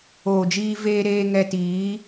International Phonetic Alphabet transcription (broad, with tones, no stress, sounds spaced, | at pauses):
oː˨ d͡ʒ iː˧ v eː˧ ɾ eː˧ ŋ ɛ˧ t iː˨˦